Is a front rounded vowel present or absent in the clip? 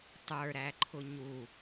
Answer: absent